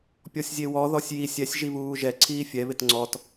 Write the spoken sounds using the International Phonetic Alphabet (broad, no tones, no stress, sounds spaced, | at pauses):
pʲ ɔ sʲ zʲ e w ɔ ð ɔ sʲ j i sʲ ɛ sʲ ʒ i β uː ʒ ɛ ǀʰ iː fʲ ɛ β ɪ t ŋ͡ǀ ɔ t